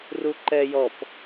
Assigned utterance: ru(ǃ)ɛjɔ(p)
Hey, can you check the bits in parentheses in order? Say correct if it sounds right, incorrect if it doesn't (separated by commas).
correct, correct